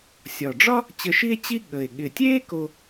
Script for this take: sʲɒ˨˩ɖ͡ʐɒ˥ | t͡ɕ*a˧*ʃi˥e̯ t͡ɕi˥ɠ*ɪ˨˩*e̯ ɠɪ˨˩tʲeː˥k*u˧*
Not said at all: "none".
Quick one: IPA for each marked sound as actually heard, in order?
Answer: ə˧, ə˨˩, o˧

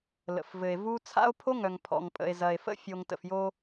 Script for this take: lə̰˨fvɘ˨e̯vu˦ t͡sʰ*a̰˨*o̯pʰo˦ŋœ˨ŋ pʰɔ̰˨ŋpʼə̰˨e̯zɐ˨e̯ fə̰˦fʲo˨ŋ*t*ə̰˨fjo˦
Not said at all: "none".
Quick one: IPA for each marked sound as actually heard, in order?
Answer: a̰˦, t

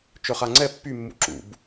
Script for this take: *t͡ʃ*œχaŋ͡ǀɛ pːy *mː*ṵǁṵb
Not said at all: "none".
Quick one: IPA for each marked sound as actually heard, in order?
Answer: t͡ʃ, mː

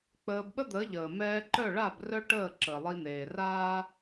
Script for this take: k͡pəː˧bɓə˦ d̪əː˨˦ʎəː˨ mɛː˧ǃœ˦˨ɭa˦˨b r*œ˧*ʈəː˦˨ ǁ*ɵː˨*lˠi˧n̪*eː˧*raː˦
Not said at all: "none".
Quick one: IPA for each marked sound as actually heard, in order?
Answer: œ˦, əː˨, eː˨

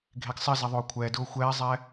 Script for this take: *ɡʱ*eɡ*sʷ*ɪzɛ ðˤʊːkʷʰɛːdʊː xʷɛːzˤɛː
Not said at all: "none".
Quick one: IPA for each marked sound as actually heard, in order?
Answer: ɡʱ, sˤ

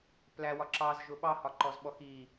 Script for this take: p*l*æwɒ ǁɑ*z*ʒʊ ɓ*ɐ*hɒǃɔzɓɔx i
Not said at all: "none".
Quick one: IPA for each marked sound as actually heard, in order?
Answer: l, z, ɑ

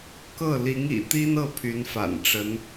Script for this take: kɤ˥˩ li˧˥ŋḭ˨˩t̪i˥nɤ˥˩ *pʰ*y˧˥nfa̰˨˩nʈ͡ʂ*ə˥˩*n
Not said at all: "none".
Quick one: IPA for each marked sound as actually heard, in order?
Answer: pʰ, ə˧˥

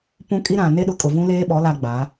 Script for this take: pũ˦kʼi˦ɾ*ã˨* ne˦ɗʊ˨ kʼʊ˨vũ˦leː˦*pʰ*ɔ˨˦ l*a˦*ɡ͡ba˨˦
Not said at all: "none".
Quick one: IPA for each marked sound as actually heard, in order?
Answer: ã˨, ɓ, a˦

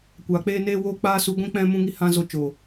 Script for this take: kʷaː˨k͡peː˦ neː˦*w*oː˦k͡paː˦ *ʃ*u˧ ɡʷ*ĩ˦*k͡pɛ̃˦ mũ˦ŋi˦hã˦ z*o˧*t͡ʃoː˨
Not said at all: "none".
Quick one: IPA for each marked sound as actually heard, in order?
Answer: w, s, ĩ˦, o˧

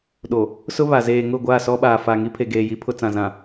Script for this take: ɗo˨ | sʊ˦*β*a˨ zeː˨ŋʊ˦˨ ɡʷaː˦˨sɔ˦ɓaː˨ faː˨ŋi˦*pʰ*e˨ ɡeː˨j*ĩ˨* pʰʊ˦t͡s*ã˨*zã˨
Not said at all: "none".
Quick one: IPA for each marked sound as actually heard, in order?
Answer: β, pʰ, i˨, ã˨

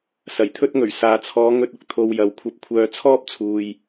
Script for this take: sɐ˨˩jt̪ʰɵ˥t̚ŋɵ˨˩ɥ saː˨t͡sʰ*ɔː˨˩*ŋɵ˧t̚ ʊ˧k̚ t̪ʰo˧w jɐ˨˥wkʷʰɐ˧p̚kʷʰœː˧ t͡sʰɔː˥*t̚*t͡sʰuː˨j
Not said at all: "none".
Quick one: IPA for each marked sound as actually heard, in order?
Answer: ɔː˨˧, p̚

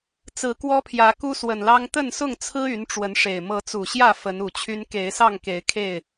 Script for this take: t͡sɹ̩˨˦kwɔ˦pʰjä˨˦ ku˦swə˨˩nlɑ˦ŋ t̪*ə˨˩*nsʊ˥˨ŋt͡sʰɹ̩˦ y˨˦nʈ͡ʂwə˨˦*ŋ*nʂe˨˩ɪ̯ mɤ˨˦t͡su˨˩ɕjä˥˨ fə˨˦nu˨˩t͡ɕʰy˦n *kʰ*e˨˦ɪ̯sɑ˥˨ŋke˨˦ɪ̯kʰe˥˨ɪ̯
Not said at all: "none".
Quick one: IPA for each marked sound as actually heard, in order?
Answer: ə˥˨, none, k

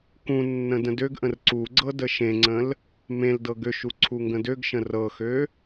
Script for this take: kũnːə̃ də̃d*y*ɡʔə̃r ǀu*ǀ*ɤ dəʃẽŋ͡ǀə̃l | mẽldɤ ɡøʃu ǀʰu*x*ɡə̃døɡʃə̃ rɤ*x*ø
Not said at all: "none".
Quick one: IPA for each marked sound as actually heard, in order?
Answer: ø, ɡ͡ǀ, ŋ, x

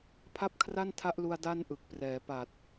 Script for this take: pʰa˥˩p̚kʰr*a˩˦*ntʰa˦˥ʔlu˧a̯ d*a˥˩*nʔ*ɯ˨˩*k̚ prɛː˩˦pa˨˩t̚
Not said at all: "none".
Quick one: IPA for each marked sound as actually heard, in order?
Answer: a˥˩, a˥˩, ɯ˨˩

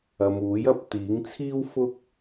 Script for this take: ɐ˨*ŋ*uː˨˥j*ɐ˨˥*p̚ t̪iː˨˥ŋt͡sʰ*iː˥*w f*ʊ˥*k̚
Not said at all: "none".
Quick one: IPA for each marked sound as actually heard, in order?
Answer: m, ɐ˧, iː˥, ʊ˥

